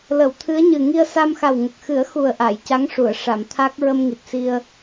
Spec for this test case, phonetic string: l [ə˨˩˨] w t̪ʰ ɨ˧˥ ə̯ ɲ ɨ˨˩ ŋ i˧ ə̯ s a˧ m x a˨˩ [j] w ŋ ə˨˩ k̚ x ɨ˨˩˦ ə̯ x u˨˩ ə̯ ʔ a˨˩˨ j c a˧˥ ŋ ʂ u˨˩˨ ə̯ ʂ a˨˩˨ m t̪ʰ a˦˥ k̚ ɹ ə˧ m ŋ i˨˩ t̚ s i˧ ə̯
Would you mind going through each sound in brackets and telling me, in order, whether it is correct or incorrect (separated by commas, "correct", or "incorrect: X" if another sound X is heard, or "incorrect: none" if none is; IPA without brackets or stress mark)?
correct, incorrect: none